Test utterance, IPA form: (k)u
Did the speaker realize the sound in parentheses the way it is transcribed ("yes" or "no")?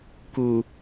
yes